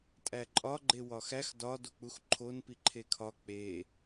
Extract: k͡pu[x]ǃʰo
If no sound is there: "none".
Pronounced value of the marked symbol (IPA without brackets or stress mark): x